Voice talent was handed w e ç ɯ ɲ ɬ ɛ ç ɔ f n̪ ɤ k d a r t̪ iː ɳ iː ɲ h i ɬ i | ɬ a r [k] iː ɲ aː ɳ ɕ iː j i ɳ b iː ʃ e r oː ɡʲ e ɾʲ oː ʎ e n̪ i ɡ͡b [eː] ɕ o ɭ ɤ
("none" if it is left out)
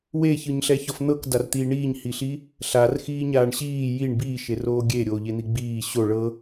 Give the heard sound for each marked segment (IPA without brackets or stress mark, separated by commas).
x, iː